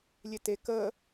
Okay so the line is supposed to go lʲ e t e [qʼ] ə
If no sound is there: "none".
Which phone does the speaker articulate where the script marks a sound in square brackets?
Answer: k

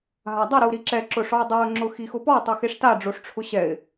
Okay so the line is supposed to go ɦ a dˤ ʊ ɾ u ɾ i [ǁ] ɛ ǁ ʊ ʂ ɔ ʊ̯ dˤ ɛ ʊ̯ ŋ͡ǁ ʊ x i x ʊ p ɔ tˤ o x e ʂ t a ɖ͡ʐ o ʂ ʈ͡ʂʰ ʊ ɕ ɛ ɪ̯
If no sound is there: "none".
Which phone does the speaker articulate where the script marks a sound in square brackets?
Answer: ǁ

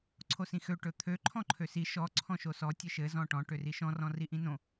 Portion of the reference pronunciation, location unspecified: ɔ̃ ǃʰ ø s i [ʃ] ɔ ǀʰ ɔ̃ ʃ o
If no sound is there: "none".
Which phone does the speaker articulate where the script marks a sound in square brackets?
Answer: ʃ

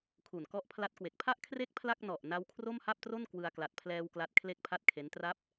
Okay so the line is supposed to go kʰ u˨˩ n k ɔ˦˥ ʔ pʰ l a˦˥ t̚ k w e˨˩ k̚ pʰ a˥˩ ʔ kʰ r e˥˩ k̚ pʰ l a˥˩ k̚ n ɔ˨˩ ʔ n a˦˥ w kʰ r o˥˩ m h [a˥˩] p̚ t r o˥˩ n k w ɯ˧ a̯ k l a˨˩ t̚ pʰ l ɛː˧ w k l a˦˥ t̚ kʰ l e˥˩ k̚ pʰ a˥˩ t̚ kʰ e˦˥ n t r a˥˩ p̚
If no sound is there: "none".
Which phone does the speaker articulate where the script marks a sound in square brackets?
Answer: a˥˩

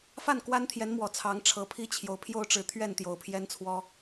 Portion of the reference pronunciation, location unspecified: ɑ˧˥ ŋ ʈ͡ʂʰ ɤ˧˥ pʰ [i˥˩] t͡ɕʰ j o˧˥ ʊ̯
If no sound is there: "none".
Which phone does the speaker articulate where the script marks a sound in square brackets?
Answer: i˥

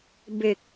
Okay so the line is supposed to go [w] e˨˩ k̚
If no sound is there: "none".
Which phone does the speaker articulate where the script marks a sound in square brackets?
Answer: b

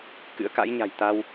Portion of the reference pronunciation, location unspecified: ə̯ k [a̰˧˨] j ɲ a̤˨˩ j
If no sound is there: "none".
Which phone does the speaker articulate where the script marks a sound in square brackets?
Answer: a̰˧˥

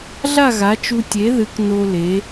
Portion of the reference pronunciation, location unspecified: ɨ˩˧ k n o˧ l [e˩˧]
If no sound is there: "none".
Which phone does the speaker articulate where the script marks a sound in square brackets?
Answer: e˩˧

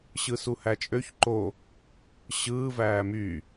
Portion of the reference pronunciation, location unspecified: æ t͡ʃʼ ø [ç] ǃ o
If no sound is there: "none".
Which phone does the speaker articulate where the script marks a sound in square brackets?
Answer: ç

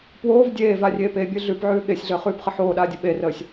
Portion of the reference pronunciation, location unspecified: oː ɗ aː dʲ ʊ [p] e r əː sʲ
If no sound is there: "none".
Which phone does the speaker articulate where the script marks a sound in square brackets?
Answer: ɓ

